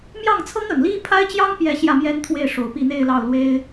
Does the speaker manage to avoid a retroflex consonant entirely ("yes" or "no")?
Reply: no